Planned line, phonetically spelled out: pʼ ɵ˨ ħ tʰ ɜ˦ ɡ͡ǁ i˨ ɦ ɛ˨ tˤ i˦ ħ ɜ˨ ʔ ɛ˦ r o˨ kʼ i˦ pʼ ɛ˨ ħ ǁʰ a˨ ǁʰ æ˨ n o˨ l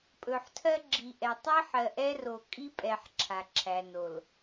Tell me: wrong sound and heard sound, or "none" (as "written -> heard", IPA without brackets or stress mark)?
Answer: ɦ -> ʔ